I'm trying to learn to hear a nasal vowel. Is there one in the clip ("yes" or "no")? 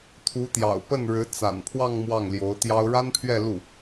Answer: no